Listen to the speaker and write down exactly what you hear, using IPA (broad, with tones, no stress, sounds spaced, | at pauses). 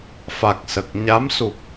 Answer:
f a˨˩ k̚ s ə˨˩ k̚ ɲ a˧˥ m s u˨˩ p̚